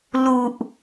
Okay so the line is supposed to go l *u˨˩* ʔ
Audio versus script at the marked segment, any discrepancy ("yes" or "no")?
no